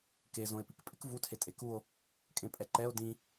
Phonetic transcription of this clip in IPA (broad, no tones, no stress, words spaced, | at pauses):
kezõe̯pik pʼɪk vutʰe tʼekuo̯ | kʼẽpʼɛǃɛo̯ dĩ